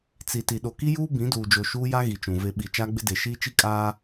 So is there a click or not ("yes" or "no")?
no